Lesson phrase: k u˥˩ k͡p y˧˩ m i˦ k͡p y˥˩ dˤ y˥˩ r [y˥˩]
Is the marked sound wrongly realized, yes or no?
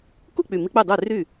no